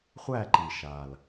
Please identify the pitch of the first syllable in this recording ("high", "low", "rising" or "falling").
falling